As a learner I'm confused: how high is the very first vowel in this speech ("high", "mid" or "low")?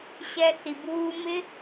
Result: mid